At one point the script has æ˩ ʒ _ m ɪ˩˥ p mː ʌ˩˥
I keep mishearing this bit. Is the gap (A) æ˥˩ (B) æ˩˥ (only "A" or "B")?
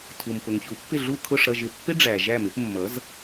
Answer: A